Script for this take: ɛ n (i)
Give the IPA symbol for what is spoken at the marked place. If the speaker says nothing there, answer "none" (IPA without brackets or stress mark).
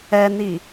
i